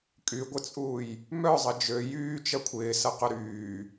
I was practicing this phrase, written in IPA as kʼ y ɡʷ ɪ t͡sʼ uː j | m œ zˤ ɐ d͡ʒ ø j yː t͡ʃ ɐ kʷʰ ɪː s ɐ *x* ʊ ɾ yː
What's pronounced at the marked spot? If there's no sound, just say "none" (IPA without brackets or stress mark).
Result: q